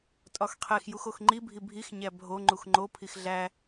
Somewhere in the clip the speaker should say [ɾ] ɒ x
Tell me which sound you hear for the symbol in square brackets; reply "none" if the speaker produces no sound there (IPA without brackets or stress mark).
tʼ